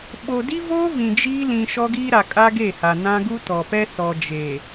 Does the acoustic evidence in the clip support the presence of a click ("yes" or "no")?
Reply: no